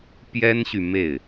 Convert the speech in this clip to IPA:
pjɛ˥nɕy˨ me˥˩ɪ̯

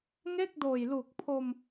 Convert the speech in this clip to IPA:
ŋe˥˩k̚doː˨˩jlu˨˩k̚pʰo˧m

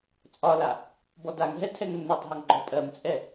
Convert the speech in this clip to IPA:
t͡sʼɒla | bɔdaŋɦɛ tʰɛŋnːɔtˤɦɒŋ ɡ͡ǃɔpʼɜmt͡sʼɛ

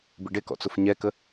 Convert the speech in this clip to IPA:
biɖɪkɔ̰ t͡sʊfɲɛkə

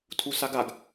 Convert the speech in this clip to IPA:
tʰusaɡaɡ

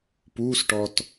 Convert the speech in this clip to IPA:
pusʈɔt

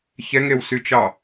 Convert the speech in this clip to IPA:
çɛŋewsyt͡ʃɑ

